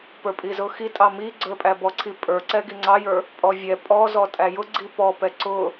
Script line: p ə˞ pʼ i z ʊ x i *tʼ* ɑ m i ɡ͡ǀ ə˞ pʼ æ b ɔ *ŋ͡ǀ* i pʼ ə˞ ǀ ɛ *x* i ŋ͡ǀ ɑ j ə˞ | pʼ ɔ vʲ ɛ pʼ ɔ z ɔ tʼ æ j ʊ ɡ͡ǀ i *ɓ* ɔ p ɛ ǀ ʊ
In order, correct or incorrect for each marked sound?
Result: correct, incorrect: ǀʰ, incorrect: ɡ, incorrect: p

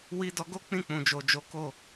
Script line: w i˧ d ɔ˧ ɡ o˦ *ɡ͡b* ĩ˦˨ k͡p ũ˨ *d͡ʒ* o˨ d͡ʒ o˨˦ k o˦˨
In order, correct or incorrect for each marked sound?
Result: incorrect: k͡p, correct

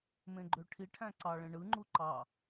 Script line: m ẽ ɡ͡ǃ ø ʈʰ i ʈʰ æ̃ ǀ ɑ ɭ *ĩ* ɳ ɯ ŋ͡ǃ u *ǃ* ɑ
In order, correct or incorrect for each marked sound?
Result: incorrect: ẽ, correct

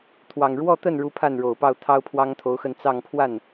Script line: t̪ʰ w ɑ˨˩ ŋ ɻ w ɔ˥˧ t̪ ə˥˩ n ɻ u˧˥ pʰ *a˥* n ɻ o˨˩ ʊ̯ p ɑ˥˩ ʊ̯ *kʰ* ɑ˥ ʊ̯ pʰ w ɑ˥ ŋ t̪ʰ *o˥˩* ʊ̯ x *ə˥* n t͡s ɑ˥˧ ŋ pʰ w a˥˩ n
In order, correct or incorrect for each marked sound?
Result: incorrect: a˥˩, incorrect: t̪ʰ, incorrect: o˧˥, incorrect: ə˥˧

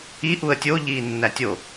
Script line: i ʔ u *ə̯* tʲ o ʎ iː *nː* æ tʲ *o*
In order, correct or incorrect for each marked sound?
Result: correct, correct, correct

